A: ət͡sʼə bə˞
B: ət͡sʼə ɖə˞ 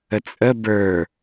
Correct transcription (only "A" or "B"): A